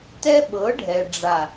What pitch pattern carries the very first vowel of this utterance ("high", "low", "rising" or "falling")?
high